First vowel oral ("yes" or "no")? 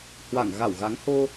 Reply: yes